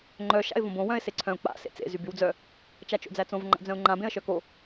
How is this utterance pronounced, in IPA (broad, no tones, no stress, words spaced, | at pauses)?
ŋ͡ǃœ ʃa̰ɪ̯võbõ wœ̃ɪ̯seǀʰœ̃ʊ̯ k͡pa̰ sḛt͡sḛ zybywd͡zœ | t͡ʃat͡ʃo̰d͡zæt͡sõv ŋ͡ǃa̰d͡zœ̃ʊ̯ŋ͡ǃã bẽə̯ʃœko